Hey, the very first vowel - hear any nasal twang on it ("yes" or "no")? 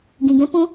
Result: yes